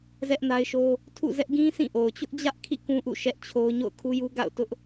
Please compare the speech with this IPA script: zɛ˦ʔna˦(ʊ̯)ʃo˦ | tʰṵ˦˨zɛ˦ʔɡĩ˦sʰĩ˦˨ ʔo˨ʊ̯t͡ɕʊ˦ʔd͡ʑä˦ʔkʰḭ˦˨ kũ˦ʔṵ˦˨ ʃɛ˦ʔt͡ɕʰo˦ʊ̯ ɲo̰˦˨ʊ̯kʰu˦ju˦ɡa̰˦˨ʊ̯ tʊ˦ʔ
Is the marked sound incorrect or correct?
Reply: incorrect